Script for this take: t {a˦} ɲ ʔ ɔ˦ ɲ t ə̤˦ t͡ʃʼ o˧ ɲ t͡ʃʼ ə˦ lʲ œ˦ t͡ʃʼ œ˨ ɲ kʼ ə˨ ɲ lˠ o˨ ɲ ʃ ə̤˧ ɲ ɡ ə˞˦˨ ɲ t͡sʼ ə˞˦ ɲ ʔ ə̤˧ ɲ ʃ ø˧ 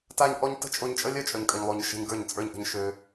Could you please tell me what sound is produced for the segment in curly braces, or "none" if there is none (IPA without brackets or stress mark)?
a˦